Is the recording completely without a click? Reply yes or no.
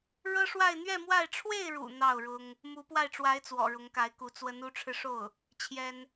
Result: yes